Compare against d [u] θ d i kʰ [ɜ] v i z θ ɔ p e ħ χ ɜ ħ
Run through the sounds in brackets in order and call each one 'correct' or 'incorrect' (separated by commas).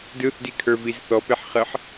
incorrect, incorrect